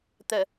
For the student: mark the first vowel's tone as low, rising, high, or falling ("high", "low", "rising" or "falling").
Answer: low